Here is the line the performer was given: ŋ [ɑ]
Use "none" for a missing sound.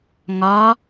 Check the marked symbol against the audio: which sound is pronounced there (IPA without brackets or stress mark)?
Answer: ɒ